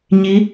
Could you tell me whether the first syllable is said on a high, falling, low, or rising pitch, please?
rising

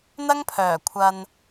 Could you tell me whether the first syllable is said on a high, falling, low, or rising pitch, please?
high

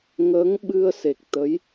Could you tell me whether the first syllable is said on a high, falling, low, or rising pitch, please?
rising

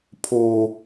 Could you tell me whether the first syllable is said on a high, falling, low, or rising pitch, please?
low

